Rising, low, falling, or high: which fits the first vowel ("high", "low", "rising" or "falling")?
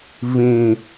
low